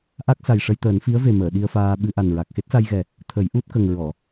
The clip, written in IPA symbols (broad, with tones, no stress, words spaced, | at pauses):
ʔa˦˥k̚ sa˨˩jʂə˧jt̪əː˨˩˦n fi˧˥ə̯ve˨˩məː˨˩˨ ɗi˧ə̯faː˧ ɓɨ˧ʔa˨˩nɹa˨˩k̚ xe˦˥t̚sa˧jɣɛ˨˩ | t̪ʰə˨˩˦jʔu˦˥t̚kə˨˩ŋ ɹɔ˨˩˨